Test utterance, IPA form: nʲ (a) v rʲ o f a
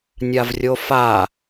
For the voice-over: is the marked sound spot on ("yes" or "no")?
yes